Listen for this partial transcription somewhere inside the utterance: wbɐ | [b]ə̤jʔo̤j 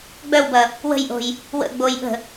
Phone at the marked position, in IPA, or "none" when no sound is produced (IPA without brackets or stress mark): w